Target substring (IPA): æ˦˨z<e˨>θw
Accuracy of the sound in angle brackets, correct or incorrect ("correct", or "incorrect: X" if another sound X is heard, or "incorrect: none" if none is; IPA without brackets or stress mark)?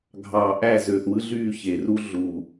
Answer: incorrect: ø˨